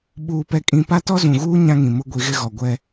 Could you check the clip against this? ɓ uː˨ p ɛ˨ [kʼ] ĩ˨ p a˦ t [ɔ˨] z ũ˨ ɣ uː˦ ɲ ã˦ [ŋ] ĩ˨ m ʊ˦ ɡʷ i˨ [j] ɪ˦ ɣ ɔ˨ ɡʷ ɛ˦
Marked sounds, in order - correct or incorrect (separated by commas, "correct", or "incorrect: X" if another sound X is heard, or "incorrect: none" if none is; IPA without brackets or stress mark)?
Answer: correct, incorrect: ɔ˦, correct, incorrect: ɣ